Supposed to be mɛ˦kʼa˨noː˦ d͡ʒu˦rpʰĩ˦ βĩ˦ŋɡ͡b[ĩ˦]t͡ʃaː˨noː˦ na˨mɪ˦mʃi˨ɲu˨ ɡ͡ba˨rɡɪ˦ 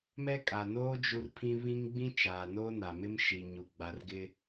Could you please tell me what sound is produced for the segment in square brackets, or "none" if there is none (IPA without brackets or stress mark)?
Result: ĩ˦